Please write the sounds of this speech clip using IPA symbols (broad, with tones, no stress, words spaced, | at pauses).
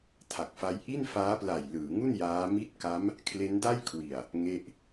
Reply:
tʰa˨˩k̚fa˦˥j ʔi˥˩nfaː˦˥pla˨˩j lɯː˩˦ŋu˥˩n jaː˦˥mi˥˩t̚ ka˦˥m | kʰle˦˥nda˥˩jkʰwi˨˩a̯ | ŋe˦˥ʔ